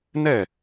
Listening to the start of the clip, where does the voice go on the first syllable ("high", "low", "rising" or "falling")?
falling